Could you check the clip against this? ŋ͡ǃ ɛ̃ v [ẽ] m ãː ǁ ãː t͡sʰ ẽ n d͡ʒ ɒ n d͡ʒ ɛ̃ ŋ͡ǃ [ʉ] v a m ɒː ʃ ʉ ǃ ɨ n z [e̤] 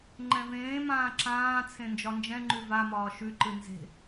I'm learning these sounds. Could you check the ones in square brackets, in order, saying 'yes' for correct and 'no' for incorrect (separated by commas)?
no, yes, yes